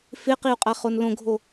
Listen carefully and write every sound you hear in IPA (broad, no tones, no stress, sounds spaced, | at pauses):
f ɪ q i u̯ qʼ a χ o n l õ ɡʱ o